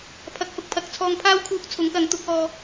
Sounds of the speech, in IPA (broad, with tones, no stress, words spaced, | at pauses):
pʰɐ˨˥k̚hʊ˨k̚pʰɐ˧k̚t͡sʰɔː˧ŋ pʰaː˥wkʰuː˧k̚ t͡sʰʊ˨˥ŋkɐ˨˥ŋ t̪ʊ˨˥k̚ɔː˧